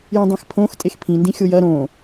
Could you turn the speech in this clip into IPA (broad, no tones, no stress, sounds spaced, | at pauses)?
j ĩ dˤ ĩ x pʰ õ x tʼ e x pʰ ĩ n d ĩ xʲ o j ɐ ɾ õ